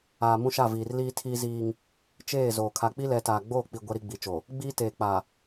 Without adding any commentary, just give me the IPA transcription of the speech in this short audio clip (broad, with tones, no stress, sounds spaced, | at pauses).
aː˨ m ũ˦ ʃ a˦˨ v iː˨ r l iː˦ tʰ iː˦ z iː˦ ŋ | t͡ʃ eː˦˨ z oː˨ kʰ a˨ k͡p i˦ l ɛ˨˦ t aː˨ ɡ͡b oː˦˨ k͡p i˨ ɡʷ ɛ˦ ɾ i˦ ɡ͡b i˨˦ t͡ʃ o˨ | ɡ͡b iː˦ t eː˨ k͡p a˨